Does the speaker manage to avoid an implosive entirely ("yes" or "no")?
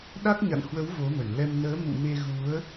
no